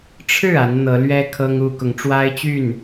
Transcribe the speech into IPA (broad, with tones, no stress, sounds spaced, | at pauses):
ʈ͡ʂʰ ɻ̩˥˩ a˧˥ n n̪ ɤ˧˥ l ɥ ɛ˥ kʰ ɤ˥ ŋ u˥ k ʊ˧˥ ŋ ʈ͡ʂ w a˥ ɪ̯ t͡ɕ y˥˩ n